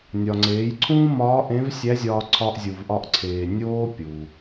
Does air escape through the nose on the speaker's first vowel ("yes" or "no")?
no